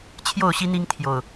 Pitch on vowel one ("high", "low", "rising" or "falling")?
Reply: falling